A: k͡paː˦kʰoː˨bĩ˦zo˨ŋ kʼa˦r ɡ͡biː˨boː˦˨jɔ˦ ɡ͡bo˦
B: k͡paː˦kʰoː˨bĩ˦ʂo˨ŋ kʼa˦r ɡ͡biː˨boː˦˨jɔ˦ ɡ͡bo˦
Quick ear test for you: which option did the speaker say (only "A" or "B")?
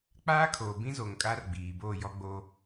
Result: A